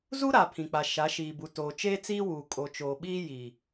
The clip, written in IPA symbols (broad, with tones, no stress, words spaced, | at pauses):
zu˦ɾa˨ pʰĩ˨k͡pa˨ ʃa˨˦ʃiː˨bu˨ toː˨t͡ʃeː˦t͡siː˦wuː˨ kʼo˨t͡ʃoː˨ɓiː˦ ji˨